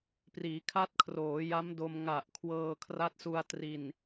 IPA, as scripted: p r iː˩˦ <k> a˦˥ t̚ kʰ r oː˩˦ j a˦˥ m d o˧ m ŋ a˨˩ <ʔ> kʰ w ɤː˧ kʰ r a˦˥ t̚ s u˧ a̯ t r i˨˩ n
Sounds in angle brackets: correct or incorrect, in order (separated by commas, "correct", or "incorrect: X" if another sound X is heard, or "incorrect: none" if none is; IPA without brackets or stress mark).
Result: incorrect: kʰ, correct